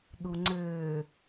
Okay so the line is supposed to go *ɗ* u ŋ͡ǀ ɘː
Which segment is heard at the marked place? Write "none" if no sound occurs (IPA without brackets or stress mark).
ɗ